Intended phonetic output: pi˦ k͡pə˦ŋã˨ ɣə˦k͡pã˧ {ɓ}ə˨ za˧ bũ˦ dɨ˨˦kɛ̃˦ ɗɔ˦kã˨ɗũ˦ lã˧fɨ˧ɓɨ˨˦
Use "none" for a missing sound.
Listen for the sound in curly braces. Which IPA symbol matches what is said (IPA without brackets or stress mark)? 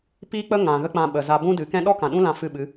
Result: ɓ